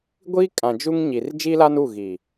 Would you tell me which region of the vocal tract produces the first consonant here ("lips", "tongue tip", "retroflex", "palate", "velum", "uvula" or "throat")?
velum